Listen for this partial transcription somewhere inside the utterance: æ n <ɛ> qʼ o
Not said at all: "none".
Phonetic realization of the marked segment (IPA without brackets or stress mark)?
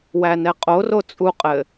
ɛ